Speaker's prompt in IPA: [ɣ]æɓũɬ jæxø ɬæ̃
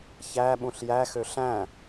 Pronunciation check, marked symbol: incorrect: ç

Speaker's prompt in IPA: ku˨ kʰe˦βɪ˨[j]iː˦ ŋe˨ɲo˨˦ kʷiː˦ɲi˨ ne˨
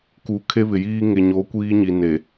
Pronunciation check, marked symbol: correct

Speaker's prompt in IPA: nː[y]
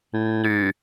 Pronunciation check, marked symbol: correct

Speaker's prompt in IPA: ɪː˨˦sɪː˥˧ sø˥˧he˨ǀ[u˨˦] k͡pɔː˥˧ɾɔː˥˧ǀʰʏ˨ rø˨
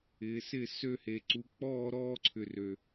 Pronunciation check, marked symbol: correct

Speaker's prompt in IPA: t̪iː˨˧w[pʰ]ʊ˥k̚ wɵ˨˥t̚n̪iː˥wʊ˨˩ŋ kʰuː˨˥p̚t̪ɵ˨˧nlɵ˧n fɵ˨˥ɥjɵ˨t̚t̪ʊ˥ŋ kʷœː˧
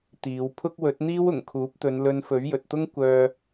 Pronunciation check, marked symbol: correct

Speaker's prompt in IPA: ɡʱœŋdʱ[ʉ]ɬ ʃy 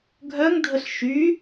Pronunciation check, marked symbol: incorrect: ə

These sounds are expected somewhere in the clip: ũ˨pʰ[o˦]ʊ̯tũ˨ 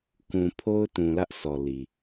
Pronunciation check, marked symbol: correct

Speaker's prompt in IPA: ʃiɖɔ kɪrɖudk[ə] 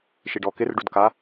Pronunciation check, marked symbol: incorrect: a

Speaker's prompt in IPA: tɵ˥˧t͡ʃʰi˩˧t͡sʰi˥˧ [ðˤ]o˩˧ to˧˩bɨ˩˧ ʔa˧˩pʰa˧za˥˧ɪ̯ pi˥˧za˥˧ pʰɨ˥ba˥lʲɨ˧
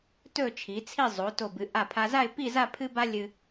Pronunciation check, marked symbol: incorrect: zˤ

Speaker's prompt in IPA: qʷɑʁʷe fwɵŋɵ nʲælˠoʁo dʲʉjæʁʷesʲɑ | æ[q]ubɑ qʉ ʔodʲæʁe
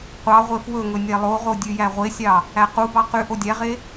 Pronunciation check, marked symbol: correct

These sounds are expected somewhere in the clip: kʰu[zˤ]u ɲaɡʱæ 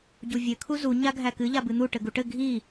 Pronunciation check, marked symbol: incorrect: z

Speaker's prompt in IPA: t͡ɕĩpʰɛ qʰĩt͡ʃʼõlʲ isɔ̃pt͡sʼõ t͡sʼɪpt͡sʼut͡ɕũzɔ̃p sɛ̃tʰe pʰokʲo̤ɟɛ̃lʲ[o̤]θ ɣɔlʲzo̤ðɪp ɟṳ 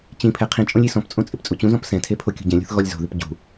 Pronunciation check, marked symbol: correct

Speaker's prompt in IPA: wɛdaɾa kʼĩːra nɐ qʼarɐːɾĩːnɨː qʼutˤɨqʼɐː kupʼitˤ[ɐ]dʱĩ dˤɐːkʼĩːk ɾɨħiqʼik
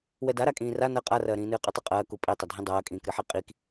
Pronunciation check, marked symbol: correct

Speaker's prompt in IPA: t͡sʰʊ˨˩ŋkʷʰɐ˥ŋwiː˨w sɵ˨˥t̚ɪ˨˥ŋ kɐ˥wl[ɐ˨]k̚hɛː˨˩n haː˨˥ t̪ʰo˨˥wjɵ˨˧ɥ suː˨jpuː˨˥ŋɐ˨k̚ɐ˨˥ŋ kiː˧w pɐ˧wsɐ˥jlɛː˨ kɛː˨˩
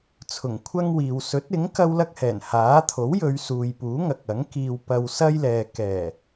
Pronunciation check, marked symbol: incorrect: ɐ˥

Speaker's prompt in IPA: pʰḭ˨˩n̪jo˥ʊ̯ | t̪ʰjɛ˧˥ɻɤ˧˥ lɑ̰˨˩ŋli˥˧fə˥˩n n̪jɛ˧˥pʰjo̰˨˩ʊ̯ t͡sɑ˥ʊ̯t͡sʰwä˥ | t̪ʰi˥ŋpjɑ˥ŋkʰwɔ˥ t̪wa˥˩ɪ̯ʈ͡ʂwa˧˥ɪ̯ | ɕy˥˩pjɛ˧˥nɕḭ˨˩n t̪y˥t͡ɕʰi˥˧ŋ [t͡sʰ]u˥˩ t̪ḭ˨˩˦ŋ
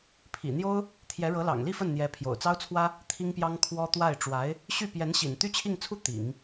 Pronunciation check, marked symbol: correct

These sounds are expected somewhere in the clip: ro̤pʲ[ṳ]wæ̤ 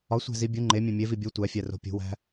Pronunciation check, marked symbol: correct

